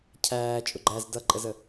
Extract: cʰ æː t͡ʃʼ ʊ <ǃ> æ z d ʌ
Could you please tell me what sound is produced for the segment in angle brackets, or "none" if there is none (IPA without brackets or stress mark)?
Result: ɡ͡ǃ